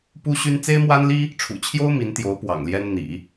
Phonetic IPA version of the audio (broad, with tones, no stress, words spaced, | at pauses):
pu˥ɕy˥n t͡se˥ɪ̯mwa˥nli˥ | ʈ͡ʂʰṵ˨˩t͡ɕʰjo˥ʊ̯ mi˧˥nt̪jo˧˥ʊ̯ pwɑ̰˨˩ŋljɛ˥n n̪ḭ˨˩˦